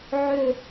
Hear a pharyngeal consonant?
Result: yes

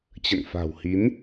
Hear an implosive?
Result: no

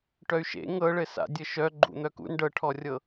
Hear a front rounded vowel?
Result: yes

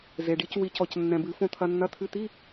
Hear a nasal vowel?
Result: yes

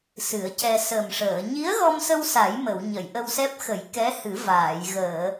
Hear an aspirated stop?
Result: no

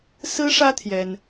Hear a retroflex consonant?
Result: yes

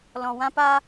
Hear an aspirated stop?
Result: no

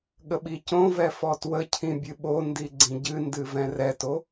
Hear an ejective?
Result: no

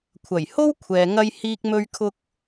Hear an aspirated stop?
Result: yes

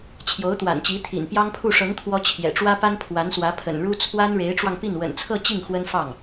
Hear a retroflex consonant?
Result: yes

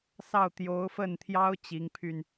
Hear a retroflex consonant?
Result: no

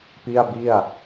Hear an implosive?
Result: no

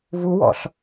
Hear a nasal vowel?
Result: no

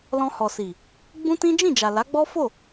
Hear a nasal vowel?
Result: yes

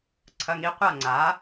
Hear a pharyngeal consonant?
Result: no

